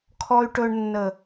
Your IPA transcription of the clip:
kʰ ɔ˨ y̯ ʈ ɵ˨ ɳ nː ə˨

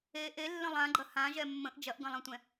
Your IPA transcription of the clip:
e ʔ e lː ə̃ lˠ ã ɡ͡ǃ ɐ h ã ʒ ɛ mː ə̃ ʔ d͡ʒ ɐ ʔ ɡ ɐ̃ lˠ ɛ̃ tʷ ɛ̃

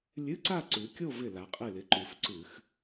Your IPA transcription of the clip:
lʲ ɨ˧˥˧ ǀ a˥˧ ǀ ʉ˩˧ kʲ o˥˧ v ɪ˧˩ l a˩˧ qʼ ɨ˧˩ l ɪ˩˧ ǃ ʉ˩˧ f ǀ ɨ˧˩˧ x

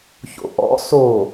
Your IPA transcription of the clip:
ç o̰ ʔ ɔ̰ s o

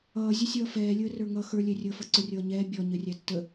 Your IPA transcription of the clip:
ʌː zʲ ə sʲ ʌː f ɛː lʲ əː r ə˞ ŋ ʌ x ə˞ lʲ ɛ rʲ əː f ʌ ǀ ʊ rʲ ʌː ɲ ɛː bʲ ɔ ɲ ə rʲ æ tː ə

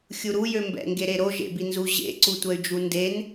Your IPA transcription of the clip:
xʲ u ɾ u j ø m b ɛ̰ ŋ ɡ e ɾ e ɾ o ʒ ḛ b i n z u ʑ ḛ ǀ u tʷ ɛ y̯ d͡ʒ u n d e n

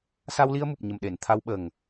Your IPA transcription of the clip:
s a˧ w l i˧ ə̯ m u˨˩ p̚ ɲ ə˨˩ m ɗ e˨˩˨ n t̪ʰ a˧ w ɓ ə˨˩ ŋ

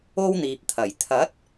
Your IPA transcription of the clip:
o˥ w n̪ iː˨ p̚ t̪ʰ ɐ˨˩ j t̪ʰ ɐ˨˥ t̚

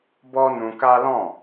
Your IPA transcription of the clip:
b ɔ˦ n ũ˧ k a˦ l ɔ̃˦˨

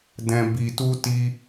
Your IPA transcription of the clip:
d ɛ̃˧ b i˧ t u˦ t i˦

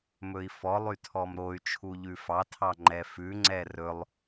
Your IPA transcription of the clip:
m ɵ i̯ f ɔ lˠ y tʰ ɔ m ɾ o y̯ t͡ʃʰ u ʎ ʉ f ɑ tʰ ɑ ŋ͡ǃ ɛ f ʉ ŋ͡ǀ ɛ r ɵ lˠ

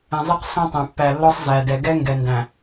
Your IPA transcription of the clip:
ɛ̃˨ zˤ e˦ q s ɔ̃˦ tˤ æ̃˨ pː æ˨ lː ɔ˦ sˤ z æ˨ d ɛ˨ ɡ ɛ˦ ŋ ɡ ɛ˨ n d æ̃˨

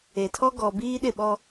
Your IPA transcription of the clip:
e˨ tʰ ɔ˦ ɡ ɔ˨ b iː˦ ɗ ɪ˦˨ ɓ ɔ˦

